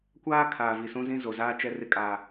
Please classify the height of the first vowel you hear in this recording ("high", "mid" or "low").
low